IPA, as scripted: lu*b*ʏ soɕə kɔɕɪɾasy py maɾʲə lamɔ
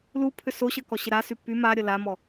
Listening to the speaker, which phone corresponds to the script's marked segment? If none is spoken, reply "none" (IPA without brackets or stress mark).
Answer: pʰ